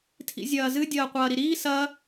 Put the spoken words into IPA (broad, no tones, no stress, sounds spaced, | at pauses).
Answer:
tʰ ḭ zʲ ɐː z ɨ dʲ ɐː qʷ ɐː ɾ i ɾ iː s ɐ